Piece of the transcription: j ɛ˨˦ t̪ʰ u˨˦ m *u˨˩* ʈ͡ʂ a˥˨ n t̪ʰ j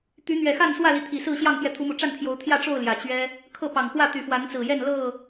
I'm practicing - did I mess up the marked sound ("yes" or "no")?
no